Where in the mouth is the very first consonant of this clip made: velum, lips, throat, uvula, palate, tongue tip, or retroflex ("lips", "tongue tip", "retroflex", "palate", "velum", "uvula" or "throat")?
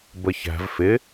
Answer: lips